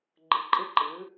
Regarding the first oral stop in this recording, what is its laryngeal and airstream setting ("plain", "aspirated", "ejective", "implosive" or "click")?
click